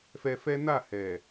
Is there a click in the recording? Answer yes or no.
no